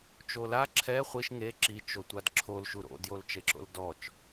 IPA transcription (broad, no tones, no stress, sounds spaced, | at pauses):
t͡ʃ o l a ǁʰ ɛ χʷ i ʃ ŋ e ǁ i t͡ʃ o tʷ a d ǁʰ o l ʃ u ɾ o̰ d j o l t͡ʃ e ǁ o̰ l d ɔ t͡ʃ